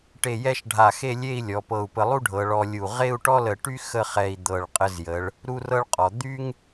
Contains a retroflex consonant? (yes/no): yes